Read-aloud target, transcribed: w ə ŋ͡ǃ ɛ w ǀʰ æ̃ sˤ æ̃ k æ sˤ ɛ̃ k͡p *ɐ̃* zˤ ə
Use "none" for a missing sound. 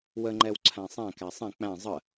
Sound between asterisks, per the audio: æ̃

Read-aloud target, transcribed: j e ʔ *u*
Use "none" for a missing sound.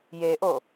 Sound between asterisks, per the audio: o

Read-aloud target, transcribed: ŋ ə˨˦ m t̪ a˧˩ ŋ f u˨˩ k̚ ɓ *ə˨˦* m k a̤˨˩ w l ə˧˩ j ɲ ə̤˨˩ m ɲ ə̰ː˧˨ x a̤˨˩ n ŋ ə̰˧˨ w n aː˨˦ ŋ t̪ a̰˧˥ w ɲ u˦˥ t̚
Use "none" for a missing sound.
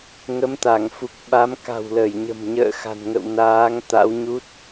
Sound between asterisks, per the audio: a˨˦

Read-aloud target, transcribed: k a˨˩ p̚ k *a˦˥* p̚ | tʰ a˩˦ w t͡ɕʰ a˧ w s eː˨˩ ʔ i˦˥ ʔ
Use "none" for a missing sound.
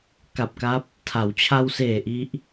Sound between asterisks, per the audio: a˦˥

